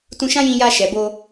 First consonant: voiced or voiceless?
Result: voiceless